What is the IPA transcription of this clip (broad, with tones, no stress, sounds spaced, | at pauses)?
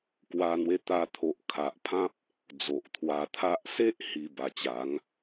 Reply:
k w a˧ n̪ w e˧ t̪ a˧ t̪ʰ o˨ ʔ kʰ a˨ ʔ pʰ ã˦ p̚ | d͡z o˨ ʔ t̪ʰ w a˧ t̪ʰ a˦ ʔ s e˦ ʔ h i˧ b a˨˩ t͡ɕ a˨˦ ŋ